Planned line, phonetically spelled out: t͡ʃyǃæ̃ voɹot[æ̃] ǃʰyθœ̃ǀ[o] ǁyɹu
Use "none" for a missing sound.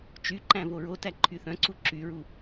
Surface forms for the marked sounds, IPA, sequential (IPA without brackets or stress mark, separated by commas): æ, u